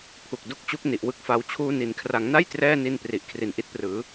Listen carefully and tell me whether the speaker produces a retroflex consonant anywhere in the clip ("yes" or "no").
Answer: no